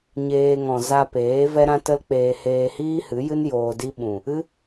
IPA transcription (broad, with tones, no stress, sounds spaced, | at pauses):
ɲ eː˧ ŋ ɔ̃˨ z a˧ p eː˨˦ v ɛ˦ ɾ ã˦ t ə˦ l k͡p eː˧ h eː˧ h iː˦ h ɨ˨˦ j ɨ˦ n j oː˧ d i˦ ɓ ũ˨ | ɨ˦